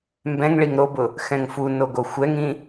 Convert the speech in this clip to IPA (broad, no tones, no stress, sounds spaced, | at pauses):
m b ɛ̃ ŋ ɭ i ŋ ɾ o b ʊ | x ɛ̃ ŋ f u n o ɡ o xʷ ɛ ŋ ĩ